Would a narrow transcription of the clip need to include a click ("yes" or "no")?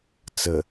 no